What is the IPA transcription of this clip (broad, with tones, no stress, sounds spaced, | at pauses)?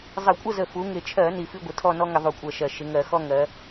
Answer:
zˤ ɪ˧˩˧ kʷʼ ə˥˨ z ə˨˩ f u˩˧ ŋ ɪ˨˩ t͡ʃʰ ɜ˧˩˧ n i˨˩ f i˦ ɡʷ ɪ˩˧ tʰ ɔ˥˨ n ɔ˦ ŋ ɪ˧˩˧ ðˤ u˧˩˧ kʷʼ ɜ˨˩ ʃ ɜ˨˩ ʃ ɪ˩˧ ŋ ɜ˧˩˧ x ɔ˦ ŋ ɜ˩˧